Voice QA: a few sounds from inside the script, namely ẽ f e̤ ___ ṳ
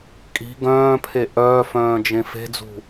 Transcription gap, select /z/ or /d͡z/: d͡z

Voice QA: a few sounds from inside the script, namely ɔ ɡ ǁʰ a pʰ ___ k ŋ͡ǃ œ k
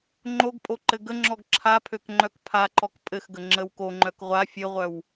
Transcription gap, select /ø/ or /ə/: ø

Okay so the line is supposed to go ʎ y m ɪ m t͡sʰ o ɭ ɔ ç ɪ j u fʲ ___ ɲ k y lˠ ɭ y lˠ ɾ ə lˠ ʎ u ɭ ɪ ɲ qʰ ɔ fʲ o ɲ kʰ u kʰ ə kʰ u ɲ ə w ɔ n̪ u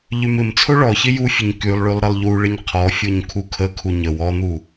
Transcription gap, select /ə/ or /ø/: ə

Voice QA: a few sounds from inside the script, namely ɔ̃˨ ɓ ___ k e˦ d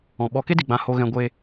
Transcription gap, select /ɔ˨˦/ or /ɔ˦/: ɔ˨˦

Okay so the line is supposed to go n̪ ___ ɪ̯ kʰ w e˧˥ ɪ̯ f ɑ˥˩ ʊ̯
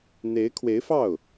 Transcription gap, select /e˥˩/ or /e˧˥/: e˧˥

